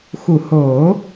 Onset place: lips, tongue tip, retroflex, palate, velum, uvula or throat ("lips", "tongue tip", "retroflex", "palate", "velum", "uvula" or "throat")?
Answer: velum